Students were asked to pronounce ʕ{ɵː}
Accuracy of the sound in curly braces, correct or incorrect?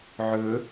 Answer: incorrect